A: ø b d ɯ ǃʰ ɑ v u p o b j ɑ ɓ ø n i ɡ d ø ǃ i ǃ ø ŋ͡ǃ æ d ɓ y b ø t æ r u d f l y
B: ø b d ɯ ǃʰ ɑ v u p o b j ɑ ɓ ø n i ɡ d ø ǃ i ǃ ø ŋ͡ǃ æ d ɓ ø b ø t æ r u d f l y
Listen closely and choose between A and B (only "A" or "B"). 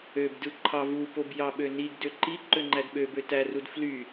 B